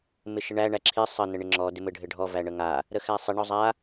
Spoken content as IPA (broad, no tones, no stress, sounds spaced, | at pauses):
m ɪ ʃ ɘ ɳ æ ɳ æ ǁʰ ɪ sˤ ə n ə ɳ ɪ ŋ͡ǁ ɔ d ɪ m ɘ ɖʱ ɘ ɖʱ ɔ v æ ɳ ə ŋ a | ɾ ə x æ sˤ ɪ ɳ ɔ zˤ a